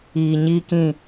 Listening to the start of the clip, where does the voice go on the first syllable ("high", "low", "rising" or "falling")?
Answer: low